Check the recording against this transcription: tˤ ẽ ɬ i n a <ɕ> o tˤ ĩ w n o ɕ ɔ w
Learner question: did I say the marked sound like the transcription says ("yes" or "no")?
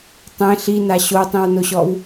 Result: yes